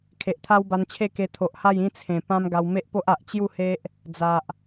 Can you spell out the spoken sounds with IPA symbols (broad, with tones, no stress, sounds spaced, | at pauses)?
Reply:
kʰ e˨ ʔ t̪ʰ a˦ w b a˧ n t͡ɕʰ e˥˧ k e˧ t̪ʰ o˨ ʔ h a˥˧ j ĩ˦ t͡sʰ ẽ˨˩ p ã˧ m ɡ a˧ w m e˦ ʔ p o˦ ʔ a˨ ʔ t͡ɕ j u˥˧ h e˦ ʔ | d͡z a˨ ʔ